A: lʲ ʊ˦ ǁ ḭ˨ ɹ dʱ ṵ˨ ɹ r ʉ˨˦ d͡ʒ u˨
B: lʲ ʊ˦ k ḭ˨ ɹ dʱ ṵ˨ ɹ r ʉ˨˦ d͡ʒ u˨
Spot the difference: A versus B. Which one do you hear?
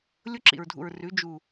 A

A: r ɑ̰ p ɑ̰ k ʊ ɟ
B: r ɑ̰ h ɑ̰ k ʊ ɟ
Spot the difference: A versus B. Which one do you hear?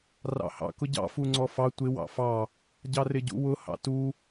B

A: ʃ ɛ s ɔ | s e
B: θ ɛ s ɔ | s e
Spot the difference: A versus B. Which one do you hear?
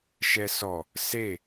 A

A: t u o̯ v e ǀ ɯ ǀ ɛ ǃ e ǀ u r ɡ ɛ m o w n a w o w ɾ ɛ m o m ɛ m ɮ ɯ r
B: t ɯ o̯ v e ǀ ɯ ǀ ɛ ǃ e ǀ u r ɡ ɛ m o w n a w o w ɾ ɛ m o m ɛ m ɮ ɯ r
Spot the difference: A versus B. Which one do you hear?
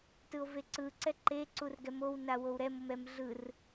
B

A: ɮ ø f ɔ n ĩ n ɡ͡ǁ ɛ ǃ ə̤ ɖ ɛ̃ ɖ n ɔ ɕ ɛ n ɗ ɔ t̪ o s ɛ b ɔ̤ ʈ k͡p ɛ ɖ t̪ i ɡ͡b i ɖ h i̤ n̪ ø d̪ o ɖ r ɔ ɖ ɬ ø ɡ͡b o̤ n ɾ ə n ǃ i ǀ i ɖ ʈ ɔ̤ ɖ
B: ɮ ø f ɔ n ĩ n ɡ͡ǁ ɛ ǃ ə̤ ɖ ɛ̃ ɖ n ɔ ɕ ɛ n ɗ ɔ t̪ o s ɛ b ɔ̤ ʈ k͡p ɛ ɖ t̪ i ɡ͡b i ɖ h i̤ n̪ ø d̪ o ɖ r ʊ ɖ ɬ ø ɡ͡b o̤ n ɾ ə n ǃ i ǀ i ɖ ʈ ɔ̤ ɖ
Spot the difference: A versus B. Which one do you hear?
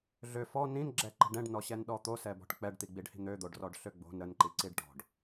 A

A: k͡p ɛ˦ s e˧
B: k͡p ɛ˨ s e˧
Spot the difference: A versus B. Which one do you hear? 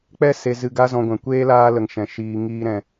A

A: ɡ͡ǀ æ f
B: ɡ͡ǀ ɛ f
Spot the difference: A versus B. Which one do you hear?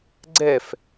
B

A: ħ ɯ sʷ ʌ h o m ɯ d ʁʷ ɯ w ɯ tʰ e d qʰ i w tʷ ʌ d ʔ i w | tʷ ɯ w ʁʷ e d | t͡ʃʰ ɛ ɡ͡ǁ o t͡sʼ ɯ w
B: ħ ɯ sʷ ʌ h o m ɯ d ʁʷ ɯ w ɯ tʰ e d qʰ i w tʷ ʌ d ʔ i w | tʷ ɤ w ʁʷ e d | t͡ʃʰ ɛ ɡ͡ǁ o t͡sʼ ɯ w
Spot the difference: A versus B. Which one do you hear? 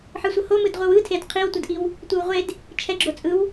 A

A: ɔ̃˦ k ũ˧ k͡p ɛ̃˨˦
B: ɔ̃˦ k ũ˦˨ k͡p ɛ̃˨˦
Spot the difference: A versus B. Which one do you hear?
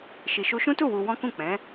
B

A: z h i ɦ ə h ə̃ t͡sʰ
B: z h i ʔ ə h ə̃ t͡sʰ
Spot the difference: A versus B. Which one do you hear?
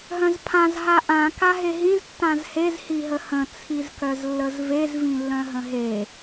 A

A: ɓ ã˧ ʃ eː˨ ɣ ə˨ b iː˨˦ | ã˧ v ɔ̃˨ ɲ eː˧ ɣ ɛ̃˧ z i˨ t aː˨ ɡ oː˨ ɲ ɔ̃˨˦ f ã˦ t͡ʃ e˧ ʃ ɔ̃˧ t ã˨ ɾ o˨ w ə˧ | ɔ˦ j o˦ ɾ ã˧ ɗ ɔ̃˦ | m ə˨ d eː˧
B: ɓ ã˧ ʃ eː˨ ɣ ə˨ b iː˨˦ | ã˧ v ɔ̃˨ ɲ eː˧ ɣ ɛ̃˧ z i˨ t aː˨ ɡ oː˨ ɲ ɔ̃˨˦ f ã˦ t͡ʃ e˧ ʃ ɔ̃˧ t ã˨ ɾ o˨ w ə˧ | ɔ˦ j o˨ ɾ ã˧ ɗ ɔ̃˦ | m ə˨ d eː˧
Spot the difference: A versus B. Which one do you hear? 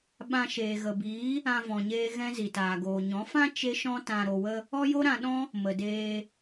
A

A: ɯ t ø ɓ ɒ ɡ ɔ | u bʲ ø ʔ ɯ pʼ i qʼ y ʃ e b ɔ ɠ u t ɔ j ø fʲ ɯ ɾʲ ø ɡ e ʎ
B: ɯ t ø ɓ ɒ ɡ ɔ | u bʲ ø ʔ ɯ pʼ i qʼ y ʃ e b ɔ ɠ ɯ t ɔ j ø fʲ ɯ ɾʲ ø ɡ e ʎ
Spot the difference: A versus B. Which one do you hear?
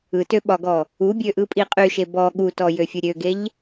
A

